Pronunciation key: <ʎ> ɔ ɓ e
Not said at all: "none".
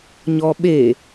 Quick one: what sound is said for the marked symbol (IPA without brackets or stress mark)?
ɲ